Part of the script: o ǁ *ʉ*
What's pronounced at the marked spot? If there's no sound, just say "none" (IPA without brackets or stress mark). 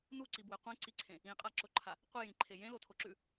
ʉ